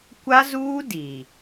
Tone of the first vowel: high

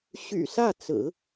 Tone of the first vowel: low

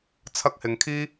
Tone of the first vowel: high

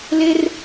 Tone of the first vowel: high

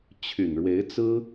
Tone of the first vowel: low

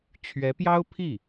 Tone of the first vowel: rising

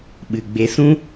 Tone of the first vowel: low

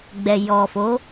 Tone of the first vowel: low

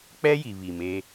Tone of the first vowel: high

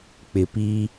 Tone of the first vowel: low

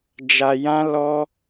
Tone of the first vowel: low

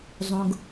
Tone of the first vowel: high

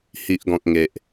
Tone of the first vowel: low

